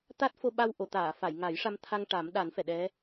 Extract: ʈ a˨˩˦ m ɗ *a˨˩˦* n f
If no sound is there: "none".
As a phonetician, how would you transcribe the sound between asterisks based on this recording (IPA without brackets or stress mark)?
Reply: a˨˩˦